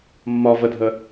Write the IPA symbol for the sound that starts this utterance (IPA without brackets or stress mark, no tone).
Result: mː